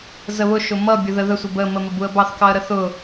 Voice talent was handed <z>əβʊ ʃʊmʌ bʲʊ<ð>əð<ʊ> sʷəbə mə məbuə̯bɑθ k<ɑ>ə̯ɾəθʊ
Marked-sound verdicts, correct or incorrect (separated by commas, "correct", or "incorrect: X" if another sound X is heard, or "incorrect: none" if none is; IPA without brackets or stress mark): correct, correct, incorrect: ə, correct